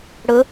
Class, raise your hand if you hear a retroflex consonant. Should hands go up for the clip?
yes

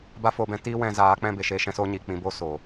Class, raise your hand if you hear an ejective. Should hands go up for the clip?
no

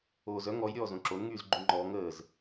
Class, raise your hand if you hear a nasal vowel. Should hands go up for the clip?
yes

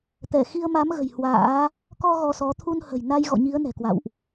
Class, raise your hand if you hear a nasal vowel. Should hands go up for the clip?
no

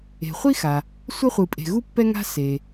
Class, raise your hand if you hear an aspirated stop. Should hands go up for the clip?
no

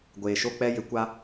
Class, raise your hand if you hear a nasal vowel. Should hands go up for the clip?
no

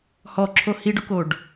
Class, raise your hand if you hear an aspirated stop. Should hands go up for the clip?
yes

